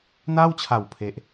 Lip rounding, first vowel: unrounded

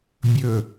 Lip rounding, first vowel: rounded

